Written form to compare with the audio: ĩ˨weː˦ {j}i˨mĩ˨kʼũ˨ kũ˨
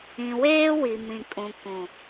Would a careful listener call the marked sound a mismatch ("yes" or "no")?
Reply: yes